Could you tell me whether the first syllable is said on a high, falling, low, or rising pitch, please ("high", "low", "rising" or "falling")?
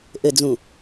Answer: low